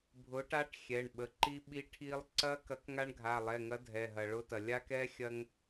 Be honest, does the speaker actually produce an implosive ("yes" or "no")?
yes